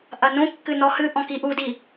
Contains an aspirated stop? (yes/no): no